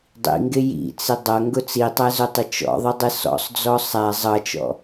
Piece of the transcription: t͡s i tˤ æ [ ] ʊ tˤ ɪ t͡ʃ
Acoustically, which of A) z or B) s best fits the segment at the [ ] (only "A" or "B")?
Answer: A